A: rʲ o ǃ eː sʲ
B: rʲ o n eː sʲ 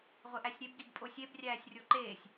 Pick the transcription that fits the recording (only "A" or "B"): A